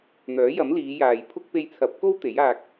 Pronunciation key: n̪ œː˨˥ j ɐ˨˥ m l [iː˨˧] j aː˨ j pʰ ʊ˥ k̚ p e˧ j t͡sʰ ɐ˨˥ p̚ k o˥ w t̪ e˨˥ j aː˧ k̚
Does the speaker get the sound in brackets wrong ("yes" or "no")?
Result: no